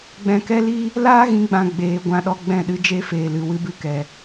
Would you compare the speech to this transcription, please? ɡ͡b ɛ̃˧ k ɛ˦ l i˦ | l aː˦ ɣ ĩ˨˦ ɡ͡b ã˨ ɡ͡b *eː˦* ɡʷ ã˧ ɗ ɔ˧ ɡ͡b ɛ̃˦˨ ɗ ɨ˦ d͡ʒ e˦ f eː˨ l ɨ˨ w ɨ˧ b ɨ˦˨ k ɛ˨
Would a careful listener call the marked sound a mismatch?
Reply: yes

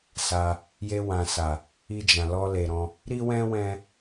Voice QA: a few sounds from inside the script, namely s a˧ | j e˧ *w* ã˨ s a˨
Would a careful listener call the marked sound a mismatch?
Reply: no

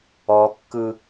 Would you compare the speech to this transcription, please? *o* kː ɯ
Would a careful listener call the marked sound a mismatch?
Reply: yes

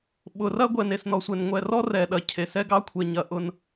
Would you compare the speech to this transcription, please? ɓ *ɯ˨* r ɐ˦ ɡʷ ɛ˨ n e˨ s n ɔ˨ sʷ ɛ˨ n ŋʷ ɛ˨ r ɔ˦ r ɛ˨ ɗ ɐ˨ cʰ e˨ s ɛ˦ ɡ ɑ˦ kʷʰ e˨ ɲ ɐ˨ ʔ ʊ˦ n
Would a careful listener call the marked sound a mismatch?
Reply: yes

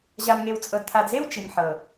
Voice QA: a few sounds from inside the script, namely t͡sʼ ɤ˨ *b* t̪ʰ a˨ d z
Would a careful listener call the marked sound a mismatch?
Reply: yes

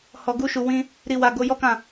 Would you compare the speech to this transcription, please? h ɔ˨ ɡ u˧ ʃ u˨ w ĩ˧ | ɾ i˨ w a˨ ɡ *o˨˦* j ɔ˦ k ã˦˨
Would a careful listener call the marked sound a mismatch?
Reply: no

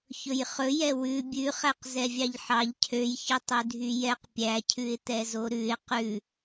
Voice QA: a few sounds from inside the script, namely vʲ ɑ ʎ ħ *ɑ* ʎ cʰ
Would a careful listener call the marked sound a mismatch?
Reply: no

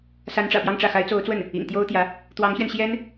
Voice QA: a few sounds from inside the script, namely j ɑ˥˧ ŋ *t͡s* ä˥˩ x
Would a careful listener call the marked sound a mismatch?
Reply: yes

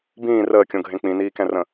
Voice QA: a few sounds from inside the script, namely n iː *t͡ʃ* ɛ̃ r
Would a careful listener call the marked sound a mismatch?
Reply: yes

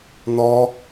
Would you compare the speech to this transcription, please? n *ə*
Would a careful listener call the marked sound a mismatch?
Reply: yes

